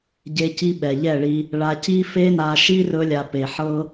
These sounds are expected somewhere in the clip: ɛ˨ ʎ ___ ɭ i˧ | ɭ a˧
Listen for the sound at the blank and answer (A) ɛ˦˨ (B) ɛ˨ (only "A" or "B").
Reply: A